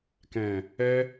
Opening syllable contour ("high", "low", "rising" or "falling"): low